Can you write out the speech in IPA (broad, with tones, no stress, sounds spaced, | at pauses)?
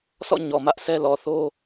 sʰ ɔ̰˦˨ ɲ ɔ˨ m ä˦ ʔ s ɛ˦ l ɔ˨ θ o˦